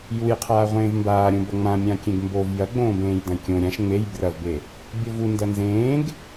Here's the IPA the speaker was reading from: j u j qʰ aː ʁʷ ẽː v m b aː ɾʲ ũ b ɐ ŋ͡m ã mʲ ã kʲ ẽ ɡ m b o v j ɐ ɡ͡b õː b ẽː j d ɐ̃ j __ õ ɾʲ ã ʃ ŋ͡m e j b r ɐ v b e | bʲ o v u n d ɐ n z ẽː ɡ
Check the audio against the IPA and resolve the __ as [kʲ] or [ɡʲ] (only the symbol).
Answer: kʲ